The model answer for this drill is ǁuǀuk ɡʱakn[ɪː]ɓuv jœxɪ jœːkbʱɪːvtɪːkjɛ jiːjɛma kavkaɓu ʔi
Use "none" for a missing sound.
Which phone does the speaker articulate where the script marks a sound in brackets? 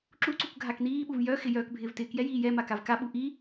iː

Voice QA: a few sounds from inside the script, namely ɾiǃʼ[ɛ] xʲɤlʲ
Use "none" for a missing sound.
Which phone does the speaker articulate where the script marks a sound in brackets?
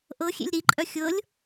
œ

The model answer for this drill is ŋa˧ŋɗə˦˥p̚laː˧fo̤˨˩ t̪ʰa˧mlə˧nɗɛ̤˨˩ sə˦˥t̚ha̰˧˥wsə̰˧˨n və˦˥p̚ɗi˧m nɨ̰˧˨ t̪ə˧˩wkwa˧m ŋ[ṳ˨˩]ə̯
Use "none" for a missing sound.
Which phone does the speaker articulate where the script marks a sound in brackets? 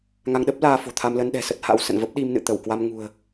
ṳ˨˩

